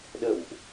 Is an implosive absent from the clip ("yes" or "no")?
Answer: no